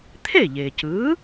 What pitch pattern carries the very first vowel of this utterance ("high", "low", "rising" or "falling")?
falling